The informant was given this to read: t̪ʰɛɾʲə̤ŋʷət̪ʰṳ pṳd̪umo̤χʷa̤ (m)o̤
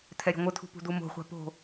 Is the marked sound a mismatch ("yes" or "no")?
yes